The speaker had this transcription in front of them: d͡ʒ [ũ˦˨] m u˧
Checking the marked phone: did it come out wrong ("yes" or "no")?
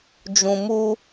yes